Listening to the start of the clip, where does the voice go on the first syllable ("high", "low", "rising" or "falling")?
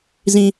low